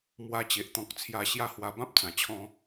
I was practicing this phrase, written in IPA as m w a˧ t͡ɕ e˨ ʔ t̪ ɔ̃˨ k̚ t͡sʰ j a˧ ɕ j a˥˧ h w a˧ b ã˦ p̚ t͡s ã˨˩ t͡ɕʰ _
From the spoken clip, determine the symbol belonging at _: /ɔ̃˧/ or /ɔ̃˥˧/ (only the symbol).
ɔ̃˧